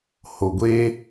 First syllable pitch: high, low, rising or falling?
low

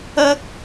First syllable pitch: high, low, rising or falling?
high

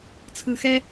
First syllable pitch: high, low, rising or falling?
low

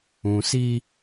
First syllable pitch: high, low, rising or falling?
low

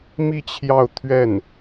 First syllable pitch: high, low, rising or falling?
falling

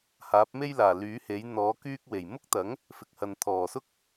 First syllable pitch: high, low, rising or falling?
rising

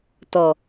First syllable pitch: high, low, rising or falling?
low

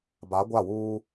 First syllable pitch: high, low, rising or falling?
rising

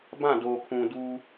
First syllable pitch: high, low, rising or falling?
falling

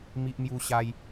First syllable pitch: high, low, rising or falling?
high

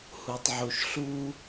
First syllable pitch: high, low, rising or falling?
low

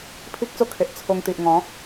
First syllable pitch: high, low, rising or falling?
high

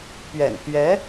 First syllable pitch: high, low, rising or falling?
low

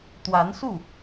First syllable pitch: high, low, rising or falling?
rising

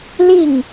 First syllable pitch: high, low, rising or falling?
falling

